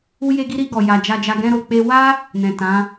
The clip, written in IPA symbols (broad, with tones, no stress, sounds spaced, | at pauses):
u˦ j e˦ ɡ i˦ ɾ i˧ ɡ ɔ˨ j a˨ d͡ʒ a˧ d͡ʒ a˧ ɡ ɛ̃˧ ɾ o˨ k͡p e˧ w a˦ | n ɛ̃˨ t ã˨˦